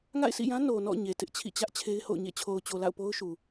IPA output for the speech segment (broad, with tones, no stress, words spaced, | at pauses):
ŋa̰˦˨ɪ̯sʰḭ˦˨jã˦ no˨nɔ̰˦˨ ɲe˨tɪ˦ʔ t͡ɕʰḭ˦˨t͡ɕä˦ʔ t͡ɕʰe˦ɪ̯ho̰˦˨ʊ̯ ɲḛ˦˨t͡ɕʰo˨ʊ̯t͡ɕo˨la̰˦˨ʊ̯ po˦ʊ̯ʃu˨